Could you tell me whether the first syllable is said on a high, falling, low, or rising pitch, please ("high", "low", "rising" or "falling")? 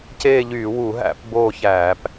falling